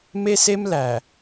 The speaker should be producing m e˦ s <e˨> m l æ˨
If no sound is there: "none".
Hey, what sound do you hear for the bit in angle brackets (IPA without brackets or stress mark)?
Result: e˦